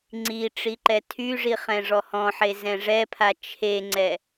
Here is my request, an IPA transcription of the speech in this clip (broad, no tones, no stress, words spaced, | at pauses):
ŋ͡ǀi ʈ͡ʂiǃɛtʰyʐi χɛ̃ʐɔhɔ̃ħe zɛ̃ʐɛpʰa t͡ʃʰeŋ͡ǀɛ